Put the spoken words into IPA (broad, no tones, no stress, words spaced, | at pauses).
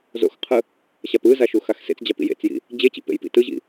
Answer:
zo̰xqʰɯ | ɕapɯza ʃuxaxsḛt͡sd͡ʑa pḭjḛt͡sjḭ | d͡ʑet͡ɕḭ pḛjpḭtɯʑḭ